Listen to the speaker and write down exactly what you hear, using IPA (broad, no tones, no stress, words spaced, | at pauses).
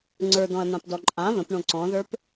ŋ͡ǀə˞dɔ̃ɐ̯n̪ãpdɔ ǃʼã βə̃pɳõ ǀɔ̃ðə˞p